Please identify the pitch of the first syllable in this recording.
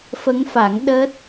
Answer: rising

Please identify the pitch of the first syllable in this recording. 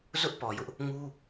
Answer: high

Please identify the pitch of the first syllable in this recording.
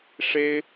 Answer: high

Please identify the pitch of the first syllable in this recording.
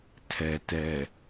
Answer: low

